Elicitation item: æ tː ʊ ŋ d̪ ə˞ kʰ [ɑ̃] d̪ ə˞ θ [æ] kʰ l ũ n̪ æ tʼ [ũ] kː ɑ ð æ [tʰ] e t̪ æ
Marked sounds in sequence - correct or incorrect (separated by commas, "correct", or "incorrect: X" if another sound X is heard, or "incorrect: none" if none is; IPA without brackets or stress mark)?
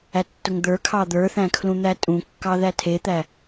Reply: incorrect: ɑ, incorrect: æ̃, correct, correct